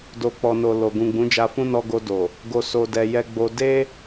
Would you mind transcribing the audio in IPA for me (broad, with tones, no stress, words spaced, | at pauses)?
do˨k͡pɔ˨no˨ lo˨ ɡũ˨ɡ͡bũ˨˦d͡ʒa˧fũ˦ nɔ˧ɡo˧do˨ | ɡo˨ so˨dɛ˨jɛ˧ɡ͡bo˧ de˦